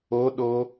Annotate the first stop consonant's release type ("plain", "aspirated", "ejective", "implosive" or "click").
implosive